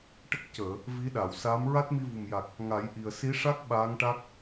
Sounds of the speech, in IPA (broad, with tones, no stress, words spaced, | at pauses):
ʈə˦˥k̚ cəː˨˩˨ | vi˧˥ɗa˨˩˨w saː˧˥m ɹa˦˥t̚mi˧ vu˨˩mja˨˩k̚ | ŋa˨˩˦jʔi˨˩ə̯ si˧˥ʂa˦˥k̚ ɓaː˧˥ŋʈa˦˥k̚